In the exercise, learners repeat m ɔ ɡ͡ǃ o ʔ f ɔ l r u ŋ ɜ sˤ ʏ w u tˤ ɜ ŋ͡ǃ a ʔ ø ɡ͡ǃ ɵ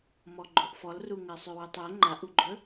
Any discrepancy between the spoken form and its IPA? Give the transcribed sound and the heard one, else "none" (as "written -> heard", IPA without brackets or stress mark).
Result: ø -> u